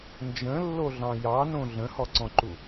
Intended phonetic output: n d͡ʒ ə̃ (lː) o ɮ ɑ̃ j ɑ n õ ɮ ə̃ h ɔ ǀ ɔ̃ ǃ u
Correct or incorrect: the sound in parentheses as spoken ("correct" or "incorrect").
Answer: correct